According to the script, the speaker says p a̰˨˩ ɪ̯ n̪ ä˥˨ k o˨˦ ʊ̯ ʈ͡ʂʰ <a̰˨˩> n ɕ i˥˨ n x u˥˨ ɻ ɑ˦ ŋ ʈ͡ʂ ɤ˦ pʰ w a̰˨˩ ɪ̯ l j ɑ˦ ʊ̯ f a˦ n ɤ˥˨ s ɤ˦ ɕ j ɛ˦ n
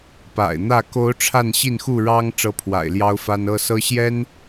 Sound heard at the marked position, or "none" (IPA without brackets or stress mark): a˥˨